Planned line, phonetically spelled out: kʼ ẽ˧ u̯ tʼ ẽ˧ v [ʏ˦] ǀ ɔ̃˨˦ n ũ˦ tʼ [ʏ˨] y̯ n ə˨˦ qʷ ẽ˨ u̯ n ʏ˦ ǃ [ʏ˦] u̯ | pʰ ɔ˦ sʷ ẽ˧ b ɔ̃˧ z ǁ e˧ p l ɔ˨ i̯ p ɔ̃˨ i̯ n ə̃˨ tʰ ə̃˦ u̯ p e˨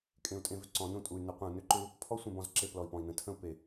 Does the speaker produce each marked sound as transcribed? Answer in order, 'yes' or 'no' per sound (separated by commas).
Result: yes, no, yes